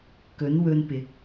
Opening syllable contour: rising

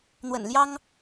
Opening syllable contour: low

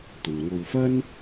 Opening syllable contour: low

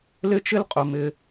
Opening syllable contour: high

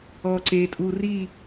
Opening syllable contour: low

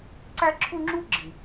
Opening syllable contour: high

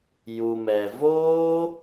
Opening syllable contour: low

